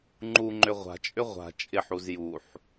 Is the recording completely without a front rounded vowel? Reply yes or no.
no